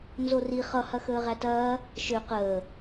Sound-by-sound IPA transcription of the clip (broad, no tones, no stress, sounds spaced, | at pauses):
n z o r i χ ʌ h ɐ x əː ʁ æ t ɐː | ʃ ø q əː